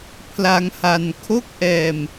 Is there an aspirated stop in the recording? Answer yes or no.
yes